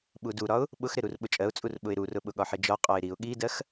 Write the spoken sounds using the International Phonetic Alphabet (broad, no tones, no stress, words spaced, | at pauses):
ɓuduɾɒʊ̯ | ɓʊxɾɪ ɾurɓʊt͡ʃʼɜʊ̯t͡sʼur ɓʊɪ̯ɾurʊɓʊ ɠɒħɪd͡ʒɒ qʼɒɪ̯ɾiʊ̯ ɠidɜx